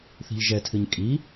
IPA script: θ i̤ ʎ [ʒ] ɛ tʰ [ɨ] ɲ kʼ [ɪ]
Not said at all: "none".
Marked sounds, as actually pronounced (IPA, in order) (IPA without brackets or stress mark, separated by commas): ʒ, ɨ, i